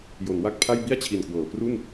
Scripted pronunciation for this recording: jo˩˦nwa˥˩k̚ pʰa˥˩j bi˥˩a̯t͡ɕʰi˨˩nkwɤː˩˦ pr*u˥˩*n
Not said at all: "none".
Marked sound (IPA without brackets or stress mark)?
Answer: u˥˩